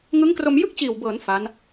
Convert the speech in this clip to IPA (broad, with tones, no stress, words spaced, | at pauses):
ŋɯ˦˥ŋkro˧m jɯ˥˩k̚t͡ɕiː˨˩wbɤː˩˦n fa˦˥n